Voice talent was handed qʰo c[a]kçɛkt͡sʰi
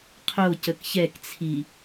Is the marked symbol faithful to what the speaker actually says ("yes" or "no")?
no